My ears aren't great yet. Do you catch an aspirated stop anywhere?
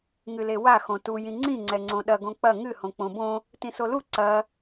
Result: no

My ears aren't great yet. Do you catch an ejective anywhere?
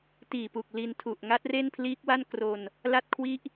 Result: no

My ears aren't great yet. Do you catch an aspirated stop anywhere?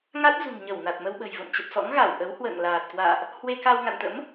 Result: no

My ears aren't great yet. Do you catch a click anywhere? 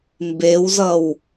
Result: no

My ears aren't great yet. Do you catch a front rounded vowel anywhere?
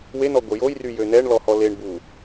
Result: yes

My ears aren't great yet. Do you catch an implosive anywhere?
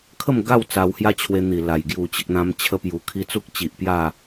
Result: no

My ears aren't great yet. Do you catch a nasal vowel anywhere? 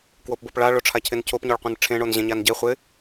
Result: yes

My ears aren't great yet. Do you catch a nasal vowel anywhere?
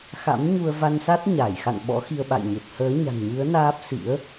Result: no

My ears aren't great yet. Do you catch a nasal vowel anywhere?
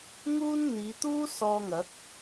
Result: no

